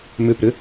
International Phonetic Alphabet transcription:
m ʏ p ɾ ʏ

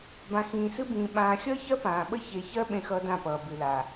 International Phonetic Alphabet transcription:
b ã˨ x ĩː˨ s ɨ˧ b ĩː˨ ɓ ãː˧ xʲ ʌː˦ ç ɜ˦ p ãː˨ ɓ ə˦ ç e˨ ç ɜ˧ ɓ ẽ˦ x ʌː˦ d ã˦˨ p ʌː˨ b ɨ˨ l a˨

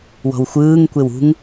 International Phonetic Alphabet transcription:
w ɔ̤ w xʷ ɯː ŋ kʷ e w ṳ ŋ

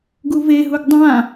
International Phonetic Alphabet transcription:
ɡ u v e ɦ u ɡ dˤ ã

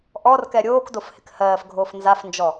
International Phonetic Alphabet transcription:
ʔ ɔ r k ɛ ɾʲ oː k d o f h ɪ k h ɜː f ɡʱ oː f n z a f n d͡ʒ ɔ

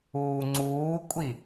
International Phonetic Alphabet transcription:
uː ŋ͡ǀ uː kʷʼ i

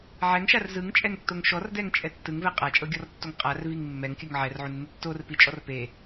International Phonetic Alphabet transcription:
ʕ ɛ ŋ ʃ a r z ɯ ŋ t͡ʃʼ ɛ ŋ tː o ŋ ʃ ɔ r d ɛ ŋ t͡ʃʼ ɛ tː ɯ ŋ v ɛ qʼ a t͡ʃʼ ɤ ɡʲ ɔ r tː o ŋ qʼ a r v i ŋ mː ɛ ŋ kʲ ɯ ŋ ʕ ɛ r ʕ u nː ɯ tː o r p i t͡ʃʼ ɔ r p e

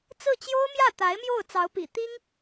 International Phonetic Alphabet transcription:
t͡s ɹ̩˥˩ t͡ɕ j o˥ ʊ̯ m j ä˥˩ t̪ a˧˥ ɪ̯ m j o˥˩ ʊ̯ t͡s ɑ˧˥ ʊ̯ p ḭ˨˩ t̪ i˥ ŋ

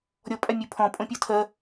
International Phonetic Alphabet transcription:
ɾʲ ɔ pʼ a mʲ u pʰ ɔ̃ pʼ õ pʲ o tʰ ɜ

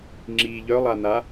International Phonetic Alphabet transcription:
ŋ͡ǁ i ʎ œ lˠ a n̪ a

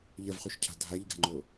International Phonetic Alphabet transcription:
ʎ ɐ v χ u ʃ cʰ a̤ dʱ a ʎ ɡ a̤ ŋ͡ǃ o

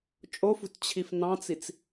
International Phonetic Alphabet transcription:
t͡ʃʼ o f ṳ t t͡ɕʰ i f n ɑ̃ t͡s i t͡s

